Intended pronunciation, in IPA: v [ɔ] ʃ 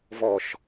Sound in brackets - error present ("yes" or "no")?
no